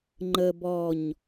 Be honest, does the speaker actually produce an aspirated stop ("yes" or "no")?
no